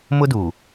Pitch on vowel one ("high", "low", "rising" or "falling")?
high